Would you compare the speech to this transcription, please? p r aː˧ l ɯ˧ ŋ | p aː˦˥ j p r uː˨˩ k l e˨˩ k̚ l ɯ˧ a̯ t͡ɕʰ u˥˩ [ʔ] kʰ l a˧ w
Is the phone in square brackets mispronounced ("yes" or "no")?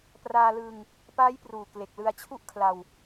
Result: no